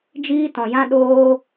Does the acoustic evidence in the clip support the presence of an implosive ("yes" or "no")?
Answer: yes